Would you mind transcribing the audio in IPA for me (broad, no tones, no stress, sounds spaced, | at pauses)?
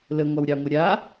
l ə ŋʷ a w ɾʲ ɑ ŋʷ a ɾʲ a